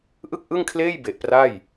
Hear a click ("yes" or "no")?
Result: no